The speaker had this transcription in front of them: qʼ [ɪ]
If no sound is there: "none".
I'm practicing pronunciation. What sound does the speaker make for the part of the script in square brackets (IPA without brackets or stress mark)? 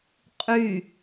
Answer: y